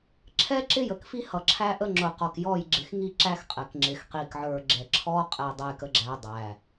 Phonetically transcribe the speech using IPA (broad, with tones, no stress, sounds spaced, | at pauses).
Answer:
ǁʰ ɛ˦ ǁ ɪ˦ j ə˨ k f i˦ h ʌ˨ ǁʰ æ˦ ʔ ə˦ ŋ͡ǁ ʊ˨ q ɔ˨ k j ɔ˦˨ j ɡ͡ǁ ɪ˨ x ŋ i˦ ǁ æ˦ x qʼ ɛ˨ k ŋ͡ǁ ɪ˨ x q i˨ k ʕ ə˞˨ ɡ͡ǁ ɛ˨ ǁʰ ɔ˦ qʼ ɛ˨ dˤ ɛ˨ j k ə˨ ɡ͡ǁ æ˨ dˤ æ˨